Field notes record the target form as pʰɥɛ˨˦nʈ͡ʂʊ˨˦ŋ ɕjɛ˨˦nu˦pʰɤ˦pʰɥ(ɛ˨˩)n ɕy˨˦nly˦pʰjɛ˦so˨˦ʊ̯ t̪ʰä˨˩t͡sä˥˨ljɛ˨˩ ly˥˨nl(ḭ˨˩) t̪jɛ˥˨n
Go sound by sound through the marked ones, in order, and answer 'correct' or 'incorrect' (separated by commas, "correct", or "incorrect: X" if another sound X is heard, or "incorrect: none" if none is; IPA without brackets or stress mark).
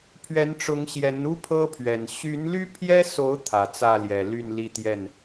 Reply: correct, incorrect: i˥˨